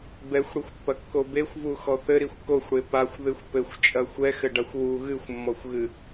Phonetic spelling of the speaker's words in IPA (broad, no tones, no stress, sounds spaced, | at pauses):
b ɛ xʷ ɽ i xʷ pː ɐ kː o b e xʷ v u x ɔ θ ɘ ɾ i xʷ k o xʷ ɽ e p a xʷ ð ɨ xʷ p ɘ xʷ t͡ʃʼ ɐ xʷ ɛ x ɘ ɖ a xʷ w u ɣ ɨ xʷ mː ɔ xʷ ɣ ɨ